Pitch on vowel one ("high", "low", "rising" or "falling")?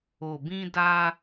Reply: low